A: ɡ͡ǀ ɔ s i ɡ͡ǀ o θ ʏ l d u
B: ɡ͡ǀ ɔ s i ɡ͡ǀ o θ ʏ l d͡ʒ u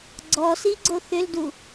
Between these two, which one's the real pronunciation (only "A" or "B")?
A